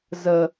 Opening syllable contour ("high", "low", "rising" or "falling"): low